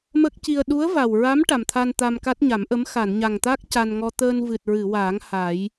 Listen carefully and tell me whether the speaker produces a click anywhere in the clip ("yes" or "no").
no